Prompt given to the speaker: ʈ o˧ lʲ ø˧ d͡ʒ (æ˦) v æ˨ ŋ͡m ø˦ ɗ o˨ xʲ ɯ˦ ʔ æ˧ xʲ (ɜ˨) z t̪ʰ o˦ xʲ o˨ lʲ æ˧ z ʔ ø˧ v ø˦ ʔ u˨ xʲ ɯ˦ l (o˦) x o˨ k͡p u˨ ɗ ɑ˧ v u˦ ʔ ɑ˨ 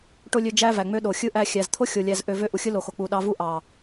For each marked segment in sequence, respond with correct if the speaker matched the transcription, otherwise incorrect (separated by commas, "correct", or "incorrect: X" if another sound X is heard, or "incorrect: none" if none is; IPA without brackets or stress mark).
correct, incorrect: æ˨, incorrect: o˨